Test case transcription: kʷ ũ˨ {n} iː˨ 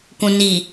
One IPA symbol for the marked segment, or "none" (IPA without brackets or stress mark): n